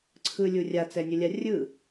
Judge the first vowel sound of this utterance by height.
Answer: high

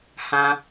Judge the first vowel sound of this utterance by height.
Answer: low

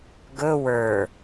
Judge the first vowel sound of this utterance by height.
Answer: mid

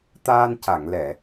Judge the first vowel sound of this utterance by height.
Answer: low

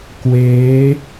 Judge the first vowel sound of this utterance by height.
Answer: mid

